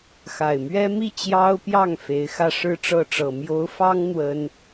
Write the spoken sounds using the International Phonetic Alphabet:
x a˨˩ ɪ̯ m ɥ ɛ˥ m i˥˩ t͡ɕ j ɑ˥ ʊ̯ p j ɑ˥˩ ŋ f e˧˥ ɪ̯ x ä˥˧ ʂ ɻ̩˥˧ ʈ͡ʂ ɤ˥˩ ʈ͡ʂ ɤ˨˩ m j o˧˥ ʊ̯ f ɑ˥ ŋ n̪ w ə˥ n

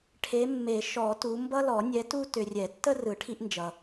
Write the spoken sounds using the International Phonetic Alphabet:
ʈʰ e˨˦ mː e˨˩˦ ʃ ɔ˨˩˦ t u˨˦ m b ʌ˦ l ɔ˨˩˦ nʲ ɛ˨˦ t u˦ t ʏ˨ rʲ ɛ˨˩˦ tː ə˦ r ɯ˨˩˦ ʈʰ i˦ ʔ n d͡ʒ ʌ˨

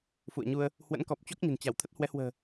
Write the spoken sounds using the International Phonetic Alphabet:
f ṵ˧˨ ə̯ ɲ u˧ ə̯ | h w ə̰˧˥ n k ɔ˨˩ p̚ t͡ɕ o˦˥ k̚ ɲ ə̤˨˩ n t͡ɕ a˧˩ w t̪ʰ ə˦˥ t̚ h w ɛ˨˦ h w ə̤ː˨˩

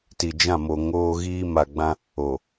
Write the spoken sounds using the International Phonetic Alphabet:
t i˨ d͡ʒ ã˦˨ m o˨ ŋ oː˦ ɣ iː˦ m a˨ ɡ͡b ã˦ | o˨

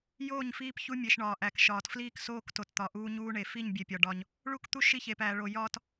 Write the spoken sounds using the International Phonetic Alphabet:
j oː˦˨ ɲ f iː˦ p ç u˦ mʲ e˨ ʃ ɳ ɒː˨ ʔ æ˨ k ʃ ɒː˨ t f l iː˦ k s oː˦ k t o˨ t t̪ ɒ˨ ʔ uː˦ ɲ uː˦ ɳ e˨ f i˦˨ ɲ bʲ e˨ pʲ ɒ˨ ɖ ɒ˦ ɲ | ɭ u˦ k t̪ u˦ ʃ i˦ ç e˨ p æː˨ ɭ o˨ j ɒː˦ t

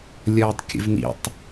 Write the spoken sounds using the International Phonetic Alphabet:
lʲ ʌː tˤ kʲ ə̰ v n ḭ tˤ

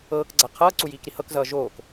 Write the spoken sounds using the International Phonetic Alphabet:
ɤː k ɡ͡ǀ a qʰ ʌː ǀ u j iː k ɾ i h ɤ k z ʌː ʒ oː k

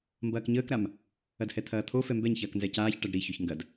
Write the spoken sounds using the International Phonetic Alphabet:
m b ɐː k ɲ əː k ɾ a m | ɐ d h ɛ t̪ʰ ɐː t̪ʰ o f ɛ m b ɛ ɲ ç ɐː k n z ɛ c aː ç ʈ ɐ ɖ ɾ i ç ø ç ŋ ɡ ɐ d

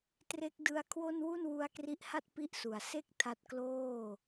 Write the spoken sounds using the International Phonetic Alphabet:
t r e˦˥ k̚ d ɯ˦˥ a̯ kʰ w o˥˩ n w u˥˩ n w u˦˥ a̯ k r i˦˥ ʔ h a˥˩ t̚ p i˥˩ ʔ s u˨˩ a̯ s e˥˩ k̚ tʰ a˦˥ t̚ k l oː˥˩

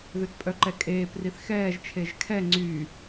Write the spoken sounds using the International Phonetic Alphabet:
ð ø t pʼ œ ǃ ɛ kʼ eː p r i θ x ɛː ʒ t͡ʃʰ e ʒ kʰ ɛ ŋ͡ǀ y

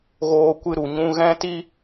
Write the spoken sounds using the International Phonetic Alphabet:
ɣ oː˧ kʷ ɨ˧ ɾ u˨ ɲ ũ˧ ɣ ɛ̃˦ t i˦

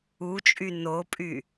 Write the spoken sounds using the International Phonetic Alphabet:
u t͡ʃʼ y n o pʼ y

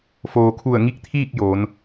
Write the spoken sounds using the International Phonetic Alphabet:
f oː˩ kʰ u˧˩ ə̯ ŋ i˧ k̚ t̪ʰ iː˥˨ k̚ j oː˩˧ n

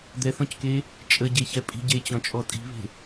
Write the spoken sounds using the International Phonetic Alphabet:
d̪ ɛ θ ɔ̃ c k e | t͡ʃʼ ə ɟ e ç ɛ pʼ i̤ ɟ e t͡ɕ ɔ̃ t͡ʃʼ ɔ tʼ i̤ β e̤

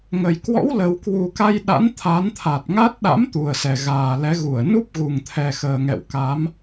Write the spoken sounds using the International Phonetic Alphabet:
ŋ ə˨˩ j k w ɔ̰˧˥ w l ə˨˩ w k w u˨˩ k a˧ j ɗ a̰˧˥ n t̪ʰ a˨˦ n t̪ʰ a˨˩ t̚ ŋ a˦˥ t̚ ɗ a̰˧˥ m t̪ u˨˩ ə̯ s ɛ˨˩ ɣ aː˨˩ l ɛ˨˦ ɣ u˧˩ ə̯ n u˦˥ p̚ ɣ u˨˩ ŋ t̪ʰ ɛ˨˩ x əː˨˩ ŋ ɛ̰˧˨ w k a˨˦ m

